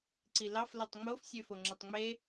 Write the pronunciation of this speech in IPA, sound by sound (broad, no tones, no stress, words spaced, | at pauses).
ǀilɑf lotˤŋ͡mof sʲøfoŋ͡ǁetˤŋ͡me